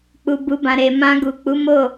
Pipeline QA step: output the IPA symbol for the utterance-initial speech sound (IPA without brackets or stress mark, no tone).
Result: k͡p